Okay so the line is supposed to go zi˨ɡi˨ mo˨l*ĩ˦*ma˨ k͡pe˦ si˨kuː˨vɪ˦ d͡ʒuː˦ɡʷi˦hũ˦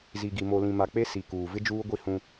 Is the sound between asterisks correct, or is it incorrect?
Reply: incorrect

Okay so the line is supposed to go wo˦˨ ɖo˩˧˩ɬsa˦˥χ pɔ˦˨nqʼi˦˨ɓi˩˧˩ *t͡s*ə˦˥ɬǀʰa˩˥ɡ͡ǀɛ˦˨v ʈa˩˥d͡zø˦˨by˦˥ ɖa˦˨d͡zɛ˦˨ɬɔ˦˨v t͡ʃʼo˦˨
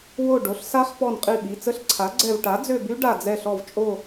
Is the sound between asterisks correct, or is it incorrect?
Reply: correct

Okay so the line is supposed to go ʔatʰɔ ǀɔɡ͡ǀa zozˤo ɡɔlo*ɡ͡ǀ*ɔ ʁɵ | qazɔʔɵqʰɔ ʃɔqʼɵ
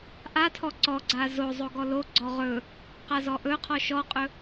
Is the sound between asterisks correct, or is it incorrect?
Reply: correct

